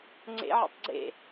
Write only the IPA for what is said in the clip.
ŋ͡ǀ ḛ ʕ ḛ tˤ ɡ͡ǀ ḛ

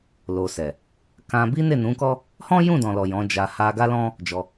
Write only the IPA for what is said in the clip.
l o˨ s ɛ˨ | k ã˧ b i˦ n e˦˨ n ũ˨˦ k ɔ˦ | h ɔ̃˦ j ũ˦˨ d ɔ̃˨ l ɔ˨ j ɔ̃˨˦ d͡ʒ a˧ h a˧ ɡ a˦ l ɔ̃˦ | d͡ʒ ɔ˧

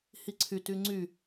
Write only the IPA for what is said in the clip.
h i ǀʰ y t y ŋ͡ǀ y

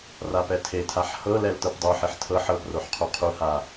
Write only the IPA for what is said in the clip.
r a p ɛ tʰ e tʰ a ħ h ɤ l ɛ l t ɤ p dˤ o ħ e ħ tʰ ɤ ħ ɤ p r o ħ qʰ o qʰ u h a

